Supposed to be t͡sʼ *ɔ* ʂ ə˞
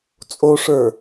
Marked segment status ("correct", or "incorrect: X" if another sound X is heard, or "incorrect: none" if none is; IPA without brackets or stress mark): incorrect: o